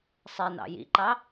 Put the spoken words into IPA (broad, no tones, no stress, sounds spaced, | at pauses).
sˤ ɛ n ɑ̰ j ḭ ǃ ɑ